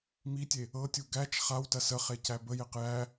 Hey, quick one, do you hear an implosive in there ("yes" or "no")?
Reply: no